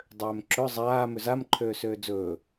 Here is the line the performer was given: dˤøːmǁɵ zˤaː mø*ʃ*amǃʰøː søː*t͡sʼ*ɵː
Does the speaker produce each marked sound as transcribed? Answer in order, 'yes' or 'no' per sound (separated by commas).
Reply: no, no